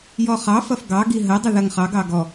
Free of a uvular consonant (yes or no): no